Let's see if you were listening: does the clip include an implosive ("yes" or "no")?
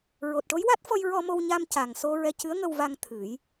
no